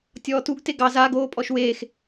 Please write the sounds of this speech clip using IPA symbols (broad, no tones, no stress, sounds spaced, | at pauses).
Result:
tʲ ɔː t u ɡ t e ɡ ɑ z a ɡ oː pʼ ɔ ʃ w eː x